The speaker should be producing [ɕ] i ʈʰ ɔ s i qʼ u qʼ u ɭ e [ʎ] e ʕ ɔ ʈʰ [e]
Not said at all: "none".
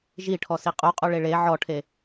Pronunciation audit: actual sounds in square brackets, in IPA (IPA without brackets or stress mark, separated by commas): ʒ, ɭ, e